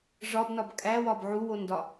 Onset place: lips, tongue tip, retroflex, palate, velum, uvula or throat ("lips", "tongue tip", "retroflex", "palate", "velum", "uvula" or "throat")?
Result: retroflex